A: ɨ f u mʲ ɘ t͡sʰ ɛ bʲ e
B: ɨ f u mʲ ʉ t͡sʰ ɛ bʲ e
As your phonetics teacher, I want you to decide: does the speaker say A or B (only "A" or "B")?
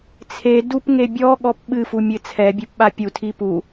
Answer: A